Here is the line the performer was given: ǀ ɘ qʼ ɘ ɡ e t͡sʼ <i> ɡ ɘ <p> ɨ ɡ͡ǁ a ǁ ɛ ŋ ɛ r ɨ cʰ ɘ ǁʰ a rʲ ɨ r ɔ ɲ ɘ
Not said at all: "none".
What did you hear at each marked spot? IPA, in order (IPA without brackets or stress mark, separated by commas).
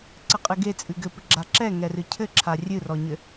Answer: ɨ, p